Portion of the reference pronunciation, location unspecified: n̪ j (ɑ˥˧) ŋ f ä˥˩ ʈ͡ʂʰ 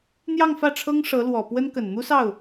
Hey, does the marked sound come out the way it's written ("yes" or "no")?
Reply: yes